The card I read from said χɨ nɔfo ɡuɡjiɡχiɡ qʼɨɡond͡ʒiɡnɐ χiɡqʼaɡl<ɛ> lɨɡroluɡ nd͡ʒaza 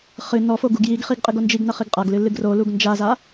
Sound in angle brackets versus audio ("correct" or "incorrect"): incorrect